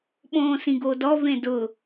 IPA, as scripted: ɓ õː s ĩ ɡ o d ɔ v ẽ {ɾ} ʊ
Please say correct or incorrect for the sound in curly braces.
incorrect